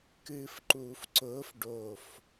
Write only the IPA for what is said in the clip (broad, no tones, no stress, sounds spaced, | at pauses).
k ɨː f ǃ uː f ǀ ʊː f ɖ o f